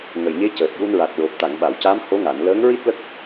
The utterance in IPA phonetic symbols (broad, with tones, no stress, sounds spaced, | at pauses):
ŋ ə˨˩ j ɲ e˧˥ c əː˨˩ t̚ j u˧ n ɹ a˨˩ t̚ ɹ o˨˩ p̚ t̪ a˨˩˨ ŋ ɓ a˨˩˨ w c a˧˥ m h o˧˥ ŋ a˨˩˨ n l əː˧˥ ŋ ɹ i˦˥ t̚ l ə˦˥ k̚